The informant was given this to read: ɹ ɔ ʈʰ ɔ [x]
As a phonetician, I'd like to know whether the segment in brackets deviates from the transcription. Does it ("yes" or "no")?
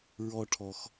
no